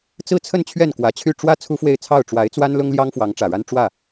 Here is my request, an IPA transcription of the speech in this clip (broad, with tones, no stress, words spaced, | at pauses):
t͡sɹ̩˥˧t͡sʰə˥˧n t͡ɕʰɥɛ˥˩nkwä˨˩t͡ɕʰy˥˩ ʈ͡ʂwä˥ t͡sʰu˥fwe˥˧ɪ̯t͡sʰɑ˥˩ʊ̯ ʈ͡ʂwa˧˥ɪ̯t͡swa˥nlʊ˥ŋljɑ˥ŋ fwɑ˧˥ŋʈ͡ʂä˨˩ɻa˥n ʈ͡ʂwä˥˩